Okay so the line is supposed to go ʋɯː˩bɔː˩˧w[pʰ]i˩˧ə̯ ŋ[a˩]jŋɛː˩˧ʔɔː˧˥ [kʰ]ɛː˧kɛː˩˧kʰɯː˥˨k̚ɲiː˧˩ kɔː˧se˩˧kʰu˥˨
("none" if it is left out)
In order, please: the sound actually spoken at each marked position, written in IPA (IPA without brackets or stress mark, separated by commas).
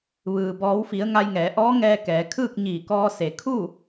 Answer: f, a˧, ŋ